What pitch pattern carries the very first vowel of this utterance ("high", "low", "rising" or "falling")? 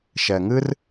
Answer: low